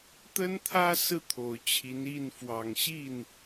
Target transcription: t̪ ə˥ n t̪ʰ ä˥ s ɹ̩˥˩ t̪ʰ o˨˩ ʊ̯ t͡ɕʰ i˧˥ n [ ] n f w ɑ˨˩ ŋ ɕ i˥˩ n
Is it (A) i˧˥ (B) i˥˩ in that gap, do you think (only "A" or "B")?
B